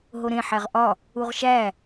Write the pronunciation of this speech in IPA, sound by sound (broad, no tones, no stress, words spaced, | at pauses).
ɦoɾẽ ħæʁʔɒ | uʁʃæ